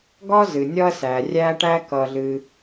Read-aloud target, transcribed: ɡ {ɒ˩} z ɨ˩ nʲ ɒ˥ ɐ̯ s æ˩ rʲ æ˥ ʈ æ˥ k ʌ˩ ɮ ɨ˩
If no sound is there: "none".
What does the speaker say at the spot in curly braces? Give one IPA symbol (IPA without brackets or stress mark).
ɒ˥